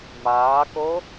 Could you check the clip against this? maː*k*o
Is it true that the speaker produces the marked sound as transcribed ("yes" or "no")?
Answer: yes